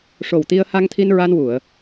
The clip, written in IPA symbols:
ʂ o˨˩ w t̪ i˧ ə̯ h a˧ ŋ t̪ʰ i˧ n ɹ a˧ n w u˨˩˨ ə̯

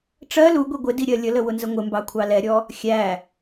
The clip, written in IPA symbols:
ʈ͡ʂ ɜ l u ɡʷ i ɡʷ ɪ d i ɾʲ ɜ lʲ ə l ə w ʊ n z ə ŋʷ ɪ m b ɑ kʷʰ ɑ l ɛ ɾʲ ɔ | xʲ æ

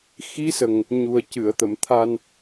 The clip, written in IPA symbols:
x i˧˥ s ə˨˩ ŋ | ɲ u˨˩ ə̯ c ɨ˨˩˨ ə̯ t̪ ə˨˩˨ m t̪ʰ a˧ n

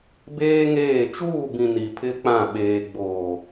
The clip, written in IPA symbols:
b eː˦ ŋ eː˦˨ t͡ʃ uː˦˨ b ĩ˨ n i˨ pʰ ɪ˦ k͡p ã˦˨ ɓ eː˨ ɡ͡b oː˨

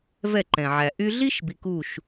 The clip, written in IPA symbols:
v ɛ˦˨ ǃ ɛ̃˨ ʕ æ˨ ʔ y˧ ɮ i˦ ʃ b i˨ k u˦˨ ʃ

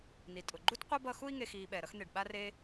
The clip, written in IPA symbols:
n i˩ tʼ ʊ˩ ɡ͡ǃ u˥ t qʷ ɛ˥ b ʌ˦ x u˦ i̯ ŋ e˨ x iː˨ ɓ ɛ˩ ɾ ʌ˦ x n̪ e˩ ɖ ɓ a˥ r e˥

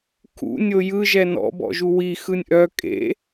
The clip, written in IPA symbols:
kʰ ṵ nʲ o j ɯ ʒ ɛ n ɔ̰ b ɔ̰ ʒ u w i x ɯ nʲ ʔ œ kʼ ḛ

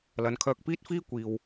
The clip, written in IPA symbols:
l ɐ˨˧ n kʰ œː˧ k̚ p iː˥ t̚ f iː˥ kʷ iː˨ w

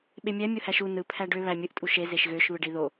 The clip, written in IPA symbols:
ɓ e mʲ æ mʲ o h æ ʃ u n ɯ pʰ æ ɖ ø β æ mʲ ɯ ʔ tʼ u ʃ e z e ʃ ɣ ø ʃ β ɯ ɖ i ð o

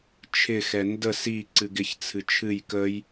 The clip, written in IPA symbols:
t͡ʃʰ ɪ x ɛ n d ə s i ǀ ɨ ɡ ɪ ç t͡sʰ ɨ t͡ʃʰ ɨ j k ə j

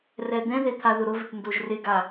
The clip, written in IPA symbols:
r ɛ d̪ ɛ̃ ð e t̪ʰ a ð ʊ ɾ ʊ v ɪ ʈ n d o ʒ r ɪ ɡ a

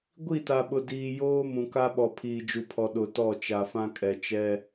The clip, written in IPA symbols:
ɡʷ i˦˨ t a˨ ɓ ʊ˨ d iː˨ j oː˦ m ũ˨ k a˦ ɓ ɔ˨ pʰ iː˨ d͡ʒ u˨ pʰ ɔ˨ ɗ ʊ˨ t ɔ˦˨ t͡ʃ a˨ f ã˦ kʼ ɛ˨ t͡ʃ ɛ˦

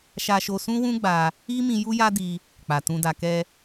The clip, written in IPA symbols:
ʃ a˧ ʃ o˧ s ũ˦ w ũ˦ ɡ͡b a˧ | i˦ m ĩ˧ j u˦ j a˦ d i˧ | k͡p a˨ t ũ˧ d a˧ k ɛ˧

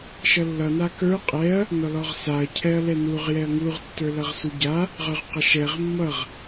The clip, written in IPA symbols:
ʃ ʌ lː ʌ n a k ə˞ qʼ ɛ ɐ̯ | n ɔ l ɔ ʁ s a ɐ̯ cʰ ɛ ɐ̯ l ɛ n u ʁ j ɛ ɐ̯ ŋ u ʁ tː ə˞ l ʌ ʁ s u ɟ a | ʁ ə˞ ʁ q ʌ ʃ ɛ ʁ mː ʌ ʁ

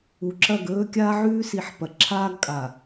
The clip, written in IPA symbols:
u˨ ǁ ɐ˦˨ ɡ ɵː˦ kʲ aː˦ ʕ ʉː˦ s i˨˦ ħ p ɐ˨ ǁʰ aː˦ ɡ kʼ a˨

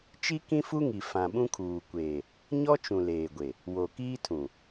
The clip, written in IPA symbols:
t͡ʃ i˦ k ĩ˦ f u˦ ŋ i˨ f ã˨ ɓ ũ˦ kʰ uː˨ kʷ eː˨ | ɲ ɔ˦ t͡ʃ ũ˨ l eː˨ ɡʷ e˨ | w o˨ k iː˦ tʰ ũ˨

